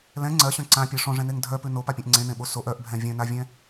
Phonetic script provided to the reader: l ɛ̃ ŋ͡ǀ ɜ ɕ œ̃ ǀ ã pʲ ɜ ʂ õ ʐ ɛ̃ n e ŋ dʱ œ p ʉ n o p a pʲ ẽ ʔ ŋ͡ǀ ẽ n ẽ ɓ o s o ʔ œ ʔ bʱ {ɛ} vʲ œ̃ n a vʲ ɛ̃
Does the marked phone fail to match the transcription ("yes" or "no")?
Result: yes